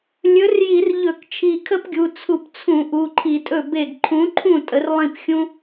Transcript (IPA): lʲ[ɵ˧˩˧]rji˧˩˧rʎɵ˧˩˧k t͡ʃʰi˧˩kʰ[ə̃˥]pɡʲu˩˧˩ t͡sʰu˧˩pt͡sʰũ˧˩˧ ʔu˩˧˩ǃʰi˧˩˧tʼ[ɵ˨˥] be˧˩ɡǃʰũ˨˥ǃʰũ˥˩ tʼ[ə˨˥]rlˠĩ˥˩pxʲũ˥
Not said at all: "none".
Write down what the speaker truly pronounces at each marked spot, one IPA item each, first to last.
ɵ˨˥, ə˥, ɵ˥˩, ə˨˥

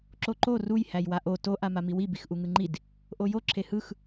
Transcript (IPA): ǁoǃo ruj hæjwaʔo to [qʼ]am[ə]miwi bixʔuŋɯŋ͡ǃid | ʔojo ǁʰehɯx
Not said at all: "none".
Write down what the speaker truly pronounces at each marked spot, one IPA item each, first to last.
ʔ, a

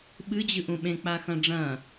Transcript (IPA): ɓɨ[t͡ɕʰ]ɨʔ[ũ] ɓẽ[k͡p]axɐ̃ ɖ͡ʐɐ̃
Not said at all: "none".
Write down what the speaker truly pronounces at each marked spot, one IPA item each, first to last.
d͡ʑ, ũ, k͡p

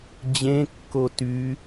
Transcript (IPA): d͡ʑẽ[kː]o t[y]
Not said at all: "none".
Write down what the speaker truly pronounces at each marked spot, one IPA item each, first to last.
kː, y

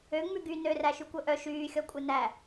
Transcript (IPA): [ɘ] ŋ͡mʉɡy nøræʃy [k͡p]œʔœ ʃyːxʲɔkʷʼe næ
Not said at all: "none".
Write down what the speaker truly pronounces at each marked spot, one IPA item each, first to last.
ø, kʷ

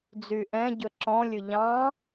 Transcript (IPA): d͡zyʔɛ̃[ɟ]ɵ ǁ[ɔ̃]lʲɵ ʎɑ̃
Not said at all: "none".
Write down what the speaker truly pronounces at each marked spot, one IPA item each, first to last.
ɟ, ɔ̃

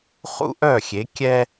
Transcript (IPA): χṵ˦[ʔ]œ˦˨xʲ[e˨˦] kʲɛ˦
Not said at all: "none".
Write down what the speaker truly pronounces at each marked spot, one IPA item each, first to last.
ʔ, e˨˦

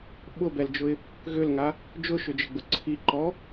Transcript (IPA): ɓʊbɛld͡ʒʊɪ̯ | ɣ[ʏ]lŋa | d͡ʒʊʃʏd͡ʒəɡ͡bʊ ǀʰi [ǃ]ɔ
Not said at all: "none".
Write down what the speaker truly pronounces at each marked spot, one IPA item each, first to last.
ʏ, ǃ

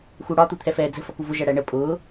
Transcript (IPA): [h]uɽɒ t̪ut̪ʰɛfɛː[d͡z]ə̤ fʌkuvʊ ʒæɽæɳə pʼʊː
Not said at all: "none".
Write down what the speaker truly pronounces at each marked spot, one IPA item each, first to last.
x, d͡z

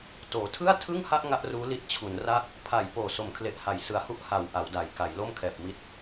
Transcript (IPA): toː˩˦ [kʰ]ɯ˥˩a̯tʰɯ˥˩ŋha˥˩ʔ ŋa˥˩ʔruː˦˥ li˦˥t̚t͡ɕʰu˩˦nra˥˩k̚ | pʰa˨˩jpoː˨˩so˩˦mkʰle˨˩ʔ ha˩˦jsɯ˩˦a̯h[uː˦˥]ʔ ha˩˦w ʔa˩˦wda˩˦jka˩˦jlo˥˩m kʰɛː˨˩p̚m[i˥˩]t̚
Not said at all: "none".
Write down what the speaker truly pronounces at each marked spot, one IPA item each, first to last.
tʰ, u˦˥, i˦˥

